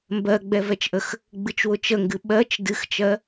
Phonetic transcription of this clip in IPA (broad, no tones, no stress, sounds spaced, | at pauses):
m b ɜ ɡ͡b ɛ v ɛ t͡ʃ ʔ ə x | ɡ͡b ɨ t͡ʃ w ʊ t͡ʃ ə ŋ ɡ ɨ ɓ ɜ t͡ʃ d ɨ x t͡ʃ ɜ